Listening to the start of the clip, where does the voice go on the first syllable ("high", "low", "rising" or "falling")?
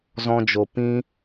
high